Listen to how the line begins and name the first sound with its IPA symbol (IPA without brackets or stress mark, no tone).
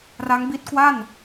r